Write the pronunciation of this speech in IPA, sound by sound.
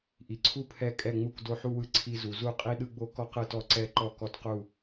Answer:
ʔ i˩ ǀʰ u˧ pʰ ɛ˧˩ kʼ ɛ˧˩ ŋ͡m u˧˩ k d o˧ ħ u˧ w ɯ˧˩ ǀʰ i˧ z u˩ z u˧˩ qʼ i˧ ɗ ɯ˧ ɡ͡b o˧ k ɔ˧ q ɯ˧˩ t ɔ˧˩ ǀ ɛ˧˩ ǃ ɔ˧˩ k ɔ˧˩ t q u˧˩

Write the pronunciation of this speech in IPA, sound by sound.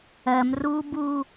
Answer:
ɜ m r u b u

